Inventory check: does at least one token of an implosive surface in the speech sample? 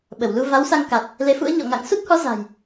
yes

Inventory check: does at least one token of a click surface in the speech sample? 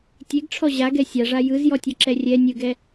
yes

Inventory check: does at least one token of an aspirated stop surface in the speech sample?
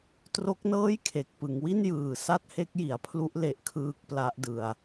yes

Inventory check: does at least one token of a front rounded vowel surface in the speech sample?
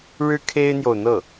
no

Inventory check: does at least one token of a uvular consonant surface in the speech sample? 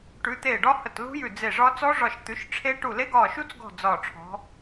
no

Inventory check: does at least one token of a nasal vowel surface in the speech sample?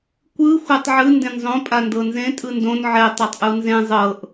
yes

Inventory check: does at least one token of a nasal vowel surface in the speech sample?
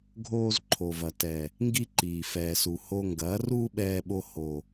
no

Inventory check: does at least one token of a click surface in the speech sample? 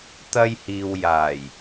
no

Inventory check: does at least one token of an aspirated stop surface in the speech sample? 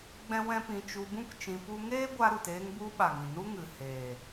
no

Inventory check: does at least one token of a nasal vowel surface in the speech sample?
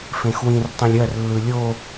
yes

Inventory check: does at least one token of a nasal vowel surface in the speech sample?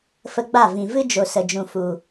yes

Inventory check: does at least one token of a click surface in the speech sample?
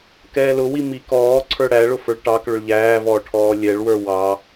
yes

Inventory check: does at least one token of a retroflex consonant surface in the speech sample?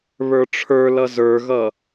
yes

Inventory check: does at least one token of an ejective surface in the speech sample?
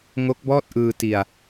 no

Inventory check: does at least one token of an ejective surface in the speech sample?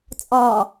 yes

